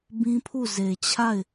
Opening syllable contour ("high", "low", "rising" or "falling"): high